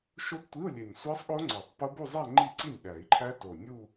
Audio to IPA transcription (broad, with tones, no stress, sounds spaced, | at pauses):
ʃ o˦˥ b tʷ i˧˥˧ u̯ lʲ e˨˩ nʲ sʷ æ˦˥ sˤ ɠ o˦˥ ŋ͡ǀ ɒ˨˩˦ tˤ p o˦˥ b u˥˧ zˤ æ˥˧ ŋ͡ǃ i˥˩ ǀ i˥˩ nʲ ɓ æ˨˩˦ i̯ ǃʰ æ˦˥ t o˨˩ nʲ u˥˧